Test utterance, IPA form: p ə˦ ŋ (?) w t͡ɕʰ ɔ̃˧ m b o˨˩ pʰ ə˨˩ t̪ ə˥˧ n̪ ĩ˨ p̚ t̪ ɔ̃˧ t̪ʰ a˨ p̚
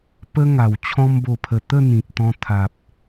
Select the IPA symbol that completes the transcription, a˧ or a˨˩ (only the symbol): a˨˩